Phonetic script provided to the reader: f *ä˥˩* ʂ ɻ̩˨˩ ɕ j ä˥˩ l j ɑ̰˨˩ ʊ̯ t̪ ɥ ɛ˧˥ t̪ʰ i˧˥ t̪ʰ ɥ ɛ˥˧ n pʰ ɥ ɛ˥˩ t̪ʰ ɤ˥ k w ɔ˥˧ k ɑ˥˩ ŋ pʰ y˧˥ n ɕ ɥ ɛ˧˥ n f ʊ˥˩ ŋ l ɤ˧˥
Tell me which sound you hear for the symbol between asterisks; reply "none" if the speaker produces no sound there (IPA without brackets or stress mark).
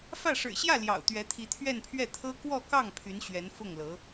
ä˥˩